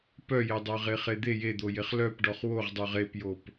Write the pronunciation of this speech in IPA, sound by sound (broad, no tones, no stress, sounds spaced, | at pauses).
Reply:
p œ j e dˤ œ ʁ e χ e d̪ e j e d̪ o j e χ l œ p ɖ ɔ χ w o ʁ dˤ o ʁ e p j o p